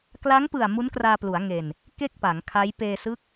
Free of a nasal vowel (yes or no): yes